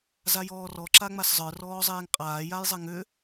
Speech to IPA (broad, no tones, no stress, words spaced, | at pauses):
zajɔːrɔ ǁaŋ͡maszˤə˞ rɔːzˤeːŋqʼaː jajzˤɛŋʏ